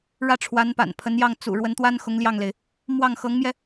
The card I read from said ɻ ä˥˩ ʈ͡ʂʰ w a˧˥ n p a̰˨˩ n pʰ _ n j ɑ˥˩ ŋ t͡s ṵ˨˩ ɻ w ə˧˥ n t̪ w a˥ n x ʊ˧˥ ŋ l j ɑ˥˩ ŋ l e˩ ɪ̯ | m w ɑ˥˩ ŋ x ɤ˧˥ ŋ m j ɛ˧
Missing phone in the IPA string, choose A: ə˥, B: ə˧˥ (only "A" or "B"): B